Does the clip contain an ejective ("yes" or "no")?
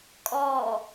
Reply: yes